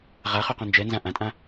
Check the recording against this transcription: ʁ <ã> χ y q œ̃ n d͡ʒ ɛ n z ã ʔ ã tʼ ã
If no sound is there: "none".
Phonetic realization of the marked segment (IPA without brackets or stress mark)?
a